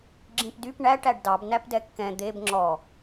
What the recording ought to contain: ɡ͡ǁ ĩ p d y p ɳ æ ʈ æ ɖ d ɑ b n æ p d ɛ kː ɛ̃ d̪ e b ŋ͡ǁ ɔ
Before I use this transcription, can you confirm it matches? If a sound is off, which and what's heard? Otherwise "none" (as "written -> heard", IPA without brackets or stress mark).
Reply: none